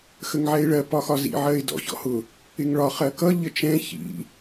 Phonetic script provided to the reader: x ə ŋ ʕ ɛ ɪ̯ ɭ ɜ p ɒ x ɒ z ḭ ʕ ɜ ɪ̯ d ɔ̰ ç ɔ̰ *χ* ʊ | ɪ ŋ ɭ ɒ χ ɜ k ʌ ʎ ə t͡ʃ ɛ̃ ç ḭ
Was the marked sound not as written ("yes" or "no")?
yes